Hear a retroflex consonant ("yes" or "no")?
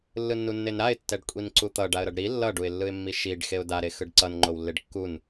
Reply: yes